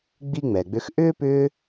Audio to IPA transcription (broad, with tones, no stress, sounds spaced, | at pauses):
ɡ͡b i˥ ŋ͡m ɛ˨ ɡ͡b ʏ˦ x ʔ ʏː˥ p ʏː˦